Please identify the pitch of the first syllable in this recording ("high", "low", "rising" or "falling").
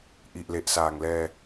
low